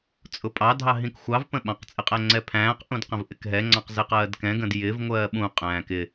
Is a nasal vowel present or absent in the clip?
present